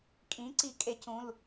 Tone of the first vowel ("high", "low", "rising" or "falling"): rising